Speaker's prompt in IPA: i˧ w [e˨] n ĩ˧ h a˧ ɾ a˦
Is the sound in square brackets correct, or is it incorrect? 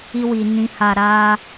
incorrect